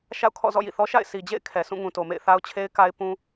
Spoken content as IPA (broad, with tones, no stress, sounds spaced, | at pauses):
ʃ a̰˦˨ ʊ̯ kʰ ɔ̰˦˨ z ɔ̰˦˨ j ḭ˦˨ θ ɔ˦ ʃ a̰˦˨ ɪ̯ sʰ i˨ d͡ʑ ḛ˦˨ ɪ̯ kʰ ɛ˨ sʰ ũ˦˨ ŋ ũ˨ t o˨ m ḛ˦˨ ɪ̯ θ a˦ ʊ̯ t͡ɕʰ e˦ ɪ̯ k a˦ ɪ̯ p ũ˦